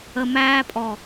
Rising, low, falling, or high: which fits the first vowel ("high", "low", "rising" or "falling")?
low